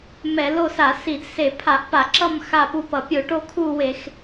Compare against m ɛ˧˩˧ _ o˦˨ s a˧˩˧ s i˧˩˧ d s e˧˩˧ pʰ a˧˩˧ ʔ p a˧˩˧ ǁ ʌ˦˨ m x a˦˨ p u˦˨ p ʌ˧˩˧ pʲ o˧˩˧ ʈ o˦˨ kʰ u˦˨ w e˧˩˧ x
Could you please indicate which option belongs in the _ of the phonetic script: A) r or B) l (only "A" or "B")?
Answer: B